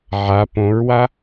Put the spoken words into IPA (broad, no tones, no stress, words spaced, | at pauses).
ʕa põɹwa